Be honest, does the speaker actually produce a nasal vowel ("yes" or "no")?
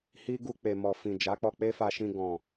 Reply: yes